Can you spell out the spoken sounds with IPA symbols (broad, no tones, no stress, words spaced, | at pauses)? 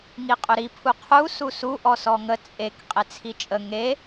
ŋiqʼɵɾi pʰuqʰu susu ʔɔsɔŋə t͡sʼek qʼet͡sʰit͡ʃʼə ŋe